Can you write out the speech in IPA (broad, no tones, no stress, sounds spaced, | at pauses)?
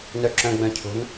n œ ǁ œ̃ ɡ͡b œ̃ cʰ o̤ n